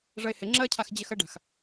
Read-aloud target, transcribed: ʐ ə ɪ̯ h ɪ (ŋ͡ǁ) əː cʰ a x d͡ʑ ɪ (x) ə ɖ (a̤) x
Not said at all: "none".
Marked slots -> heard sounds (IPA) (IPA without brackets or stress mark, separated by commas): ŋ͡ǁ, x, a̤